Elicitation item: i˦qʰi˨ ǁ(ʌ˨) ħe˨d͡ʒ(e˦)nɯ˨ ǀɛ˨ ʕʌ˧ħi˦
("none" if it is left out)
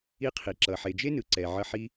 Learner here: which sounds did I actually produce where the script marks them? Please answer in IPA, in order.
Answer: ʌ˨, e˦

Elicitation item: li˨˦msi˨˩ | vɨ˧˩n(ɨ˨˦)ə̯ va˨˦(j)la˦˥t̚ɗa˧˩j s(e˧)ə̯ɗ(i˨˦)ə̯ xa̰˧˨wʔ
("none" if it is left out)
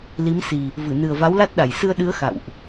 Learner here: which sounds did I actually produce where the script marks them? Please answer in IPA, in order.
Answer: ɨ˨˩, w, ɨ˧, ɨ˨˦

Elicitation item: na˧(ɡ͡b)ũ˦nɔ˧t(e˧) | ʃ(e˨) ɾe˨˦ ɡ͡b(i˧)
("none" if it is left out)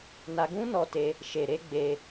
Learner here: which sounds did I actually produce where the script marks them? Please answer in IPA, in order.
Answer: ɡ, e˧, e˨, e˧

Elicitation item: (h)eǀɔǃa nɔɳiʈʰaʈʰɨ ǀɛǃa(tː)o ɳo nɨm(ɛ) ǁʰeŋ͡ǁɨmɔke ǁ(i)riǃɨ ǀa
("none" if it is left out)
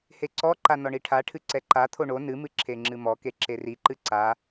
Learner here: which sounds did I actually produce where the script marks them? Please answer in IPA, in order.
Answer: h, t̪ʰ, ɨ, e

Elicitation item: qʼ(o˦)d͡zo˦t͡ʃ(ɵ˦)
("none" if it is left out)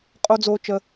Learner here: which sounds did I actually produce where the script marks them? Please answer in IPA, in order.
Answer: o˦, ə˦

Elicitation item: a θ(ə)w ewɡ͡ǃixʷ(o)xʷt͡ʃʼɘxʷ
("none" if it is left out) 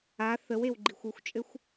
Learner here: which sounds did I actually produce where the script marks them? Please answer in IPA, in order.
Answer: ə, u

